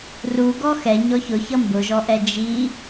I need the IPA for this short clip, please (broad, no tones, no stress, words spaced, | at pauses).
ru ɡɔxɛ ɲɔçʊçʌ mbʊʒɔʔɛ d͡ʒi